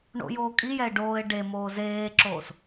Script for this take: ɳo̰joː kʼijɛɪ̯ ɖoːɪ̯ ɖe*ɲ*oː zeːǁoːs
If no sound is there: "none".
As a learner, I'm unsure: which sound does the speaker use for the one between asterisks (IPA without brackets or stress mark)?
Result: m